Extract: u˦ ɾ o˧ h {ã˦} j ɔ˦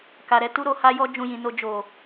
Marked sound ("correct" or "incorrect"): incorrect